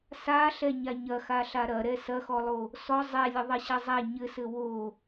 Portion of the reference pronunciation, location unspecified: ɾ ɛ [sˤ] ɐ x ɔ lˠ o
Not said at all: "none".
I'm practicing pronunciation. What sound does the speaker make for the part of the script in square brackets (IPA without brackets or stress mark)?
s